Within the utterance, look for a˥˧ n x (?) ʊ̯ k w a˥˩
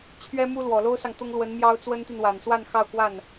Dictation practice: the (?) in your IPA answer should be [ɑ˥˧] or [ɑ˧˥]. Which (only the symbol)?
ɑ˥˧